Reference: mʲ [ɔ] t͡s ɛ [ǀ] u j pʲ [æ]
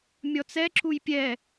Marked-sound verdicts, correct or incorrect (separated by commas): correct, incorrect, incorrect